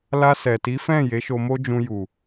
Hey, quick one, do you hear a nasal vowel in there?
yes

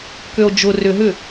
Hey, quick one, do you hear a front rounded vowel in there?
yes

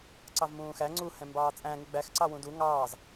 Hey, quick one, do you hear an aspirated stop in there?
no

